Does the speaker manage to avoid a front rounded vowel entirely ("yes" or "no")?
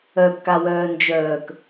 no